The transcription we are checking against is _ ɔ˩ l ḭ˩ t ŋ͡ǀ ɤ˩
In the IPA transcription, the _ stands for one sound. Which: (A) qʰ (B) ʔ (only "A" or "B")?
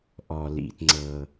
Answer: B